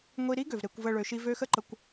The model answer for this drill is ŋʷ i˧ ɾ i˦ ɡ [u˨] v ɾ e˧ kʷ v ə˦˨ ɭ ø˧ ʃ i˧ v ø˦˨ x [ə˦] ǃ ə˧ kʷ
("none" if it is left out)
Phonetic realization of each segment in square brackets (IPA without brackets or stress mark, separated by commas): ø˨, ə˦